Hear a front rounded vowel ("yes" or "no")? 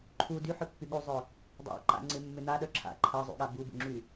yes